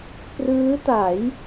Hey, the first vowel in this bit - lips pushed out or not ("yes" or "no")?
no